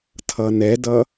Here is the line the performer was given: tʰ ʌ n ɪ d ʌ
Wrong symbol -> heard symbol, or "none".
ɪ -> ɛ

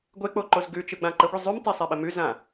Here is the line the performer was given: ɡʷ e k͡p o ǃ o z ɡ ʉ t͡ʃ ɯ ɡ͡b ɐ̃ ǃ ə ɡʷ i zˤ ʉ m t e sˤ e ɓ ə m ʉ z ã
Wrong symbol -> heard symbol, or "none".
ɐ̃ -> ã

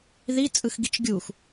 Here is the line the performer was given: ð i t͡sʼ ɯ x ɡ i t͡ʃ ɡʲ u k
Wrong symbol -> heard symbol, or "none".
k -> x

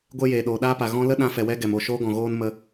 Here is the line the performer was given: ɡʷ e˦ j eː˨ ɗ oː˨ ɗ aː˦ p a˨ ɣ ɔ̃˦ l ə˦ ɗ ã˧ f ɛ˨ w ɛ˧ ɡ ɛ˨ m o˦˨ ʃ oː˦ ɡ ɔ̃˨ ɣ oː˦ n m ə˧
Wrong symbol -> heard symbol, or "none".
none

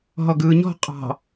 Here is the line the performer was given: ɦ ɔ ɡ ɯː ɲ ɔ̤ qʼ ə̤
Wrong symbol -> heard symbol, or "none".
ə̤ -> ɑ̤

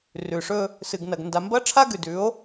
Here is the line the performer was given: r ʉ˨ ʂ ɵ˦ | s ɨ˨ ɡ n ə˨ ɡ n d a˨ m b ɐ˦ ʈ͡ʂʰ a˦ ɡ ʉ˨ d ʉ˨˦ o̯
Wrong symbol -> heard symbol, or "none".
ə˨ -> ɐ˨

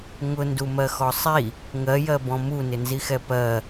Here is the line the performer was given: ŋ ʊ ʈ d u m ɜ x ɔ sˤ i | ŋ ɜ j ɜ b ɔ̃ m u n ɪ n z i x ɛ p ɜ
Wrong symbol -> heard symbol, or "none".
ʈ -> n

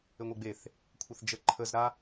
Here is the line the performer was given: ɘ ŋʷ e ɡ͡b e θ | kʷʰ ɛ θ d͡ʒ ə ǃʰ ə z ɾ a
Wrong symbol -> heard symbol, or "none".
none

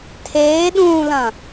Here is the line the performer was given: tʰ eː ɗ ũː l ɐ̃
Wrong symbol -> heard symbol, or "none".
none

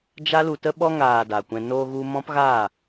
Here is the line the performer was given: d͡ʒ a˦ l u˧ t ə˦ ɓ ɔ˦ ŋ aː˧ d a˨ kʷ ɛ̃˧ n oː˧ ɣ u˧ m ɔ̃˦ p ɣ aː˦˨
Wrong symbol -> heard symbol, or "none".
none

